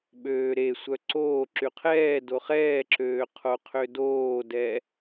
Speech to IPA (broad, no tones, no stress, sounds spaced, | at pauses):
ɓ øː ɾ e sʷ œ ǀ oː ǁ y qʰ ɛː d o χ ɛː ǁ øː qʰ o qʰ ø d oː d ɛ